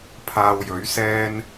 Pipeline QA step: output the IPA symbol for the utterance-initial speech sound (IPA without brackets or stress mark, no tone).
pʰ